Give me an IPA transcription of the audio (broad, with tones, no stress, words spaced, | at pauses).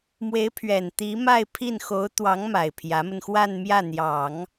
mwe˧˥ɪ̯pʰɥɛ˨˩n t̪i˧˥ma˥˧ɪ̯pʰi˥˩n xo˧˥ʊ̯t̪wɑ˧˥ŋma˨˩ɪ̯ pʰjä˧˥mə˧n xwa˥˧nmjä˥˩ n̪jɑ˨˩˦ŋ